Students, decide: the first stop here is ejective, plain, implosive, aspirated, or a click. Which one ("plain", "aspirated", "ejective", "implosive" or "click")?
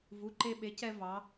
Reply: click